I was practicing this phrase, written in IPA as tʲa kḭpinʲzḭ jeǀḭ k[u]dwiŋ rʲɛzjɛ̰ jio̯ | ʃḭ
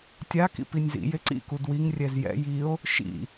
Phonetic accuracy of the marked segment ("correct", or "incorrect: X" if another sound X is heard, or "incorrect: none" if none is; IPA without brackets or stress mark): correct